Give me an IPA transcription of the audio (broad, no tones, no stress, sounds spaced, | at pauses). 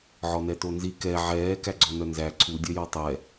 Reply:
ʕ ɔ n ɛ t o n z i k ɛ ʕ ɛː k æ ɡ͡ǀ ɔ n œ n z æ ǀʰ u dʲ œ j ɔ tˤ ɛ